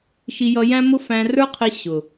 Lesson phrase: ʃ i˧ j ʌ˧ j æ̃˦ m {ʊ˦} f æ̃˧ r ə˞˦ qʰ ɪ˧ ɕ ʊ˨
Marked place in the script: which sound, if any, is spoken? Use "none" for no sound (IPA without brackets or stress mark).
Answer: ʊ˦